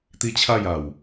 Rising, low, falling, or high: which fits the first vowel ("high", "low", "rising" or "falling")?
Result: high